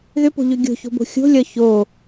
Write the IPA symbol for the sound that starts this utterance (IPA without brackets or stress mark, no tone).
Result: ð